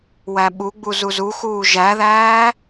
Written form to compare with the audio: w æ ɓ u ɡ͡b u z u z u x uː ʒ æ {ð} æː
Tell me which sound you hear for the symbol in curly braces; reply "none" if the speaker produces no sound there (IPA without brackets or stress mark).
ð